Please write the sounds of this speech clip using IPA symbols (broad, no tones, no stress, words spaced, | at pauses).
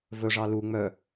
vɵʐɑ lu ŋ͡mœ